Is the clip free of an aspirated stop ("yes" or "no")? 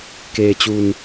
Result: yes